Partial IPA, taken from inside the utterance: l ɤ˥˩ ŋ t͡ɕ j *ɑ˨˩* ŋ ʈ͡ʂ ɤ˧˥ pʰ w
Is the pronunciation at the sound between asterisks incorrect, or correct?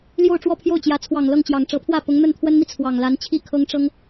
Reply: correct